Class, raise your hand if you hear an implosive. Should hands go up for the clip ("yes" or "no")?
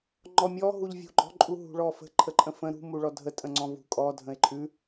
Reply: no